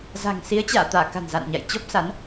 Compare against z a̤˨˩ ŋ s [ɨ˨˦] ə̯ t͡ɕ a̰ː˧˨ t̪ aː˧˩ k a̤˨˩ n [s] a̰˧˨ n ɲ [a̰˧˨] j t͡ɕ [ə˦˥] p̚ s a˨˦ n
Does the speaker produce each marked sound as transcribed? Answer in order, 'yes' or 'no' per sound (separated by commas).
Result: no, no, yes, no